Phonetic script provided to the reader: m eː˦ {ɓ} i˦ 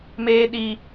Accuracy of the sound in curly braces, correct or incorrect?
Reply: incorrect